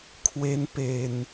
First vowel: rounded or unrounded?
unrounded